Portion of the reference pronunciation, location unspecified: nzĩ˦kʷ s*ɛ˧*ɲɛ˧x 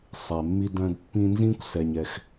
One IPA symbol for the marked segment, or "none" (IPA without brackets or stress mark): ɛ˧